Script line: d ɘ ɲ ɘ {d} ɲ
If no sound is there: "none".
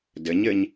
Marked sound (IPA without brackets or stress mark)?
none